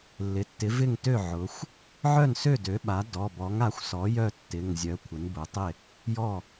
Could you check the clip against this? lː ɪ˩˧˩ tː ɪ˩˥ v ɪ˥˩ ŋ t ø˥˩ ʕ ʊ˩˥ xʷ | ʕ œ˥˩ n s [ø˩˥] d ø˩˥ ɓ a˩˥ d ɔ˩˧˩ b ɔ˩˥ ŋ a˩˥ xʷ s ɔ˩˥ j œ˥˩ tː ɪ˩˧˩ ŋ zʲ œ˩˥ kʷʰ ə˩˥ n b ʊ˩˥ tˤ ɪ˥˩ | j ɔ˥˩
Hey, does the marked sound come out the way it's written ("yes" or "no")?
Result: no